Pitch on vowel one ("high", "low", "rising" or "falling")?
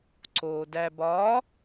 low